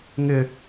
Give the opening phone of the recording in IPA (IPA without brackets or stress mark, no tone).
ŋ